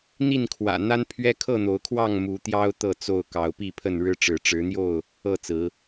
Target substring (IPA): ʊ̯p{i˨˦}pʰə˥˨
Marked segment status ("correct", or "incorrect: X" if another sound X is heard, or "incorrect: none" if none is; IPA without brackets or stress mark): incorrect: i˥˨